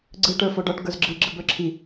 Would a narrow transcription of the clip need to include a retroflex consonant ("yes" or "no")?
yes